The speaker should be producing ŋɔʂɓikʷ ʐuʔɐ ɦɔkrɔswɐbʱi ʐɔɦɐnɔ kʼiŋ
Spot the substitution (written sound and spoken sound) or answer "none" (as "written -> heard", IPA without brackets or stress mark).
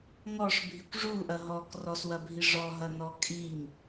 ɓ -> bʱ